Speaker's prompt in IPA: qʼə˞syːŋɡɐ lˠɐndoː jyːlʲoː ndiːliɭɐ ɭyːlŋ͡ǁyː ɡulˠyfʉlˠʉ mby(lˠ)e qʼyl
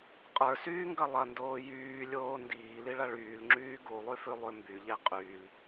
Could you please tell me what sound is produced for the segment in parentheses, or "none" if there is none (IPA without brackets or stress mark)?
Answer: ʎ